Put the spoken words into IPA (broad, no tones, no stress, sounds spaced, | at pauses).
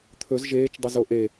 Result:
t̪ʰ ɵ z ʒ eː t͡ʃ dˤ ɨ z o ʔ e